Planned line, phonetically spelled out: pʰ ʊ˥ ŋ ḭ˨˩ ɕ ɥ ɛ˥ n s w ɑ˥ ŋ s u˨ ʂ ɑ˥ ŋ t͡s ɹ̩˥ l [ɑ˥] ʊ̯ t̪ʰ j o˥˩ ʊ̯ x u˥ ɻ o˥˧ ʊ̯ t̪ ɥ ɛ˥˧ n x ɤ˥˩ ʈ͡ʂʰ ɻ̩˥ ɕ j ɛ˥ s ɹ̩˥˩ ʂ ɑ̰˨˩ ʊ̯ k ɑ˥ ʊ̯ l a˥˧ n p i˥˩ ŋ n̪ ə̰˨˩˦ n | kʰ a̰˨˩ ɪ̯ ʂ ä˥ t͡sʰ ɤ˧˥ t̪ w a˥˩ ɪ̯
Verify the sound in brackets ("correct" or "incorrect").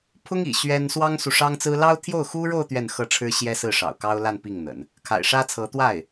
correct